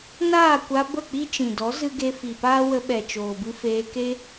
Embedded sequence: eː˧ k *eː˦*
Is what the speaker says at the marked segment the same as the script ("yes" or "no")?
no